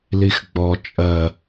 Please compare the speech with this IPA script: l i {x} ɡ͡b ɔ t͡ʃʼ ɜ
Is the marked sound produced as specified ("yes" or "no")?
yes